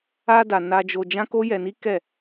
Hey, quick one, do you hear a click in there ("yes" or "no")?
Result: no